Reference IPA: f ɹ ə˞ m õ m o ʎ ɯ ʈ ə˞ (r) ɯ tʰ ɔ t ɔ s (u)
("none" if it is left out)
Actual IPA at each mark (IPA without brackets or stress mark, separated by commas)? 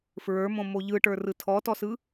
r, ɯ